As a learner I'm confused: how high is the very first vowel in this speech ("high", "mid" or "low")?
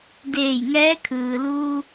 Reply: mid